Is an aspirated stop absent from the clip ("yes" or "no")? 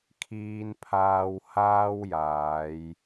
no